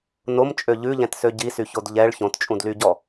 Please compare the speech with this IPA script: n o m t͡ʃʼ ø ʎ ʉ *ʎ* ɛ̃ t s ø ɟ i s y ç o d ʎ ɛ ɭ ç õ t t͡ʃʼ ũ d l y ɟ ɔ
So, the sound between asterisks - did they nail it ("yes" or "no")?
yes